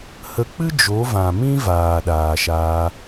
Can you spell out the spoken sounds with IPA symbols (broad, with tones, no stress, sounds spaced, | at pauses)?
h ə˧ k͡p ɨ˦ d͡ʒ o˨˦ v ã˨ m ĩ˦ v aː˨ ɗ aː˨ ʃ aː˧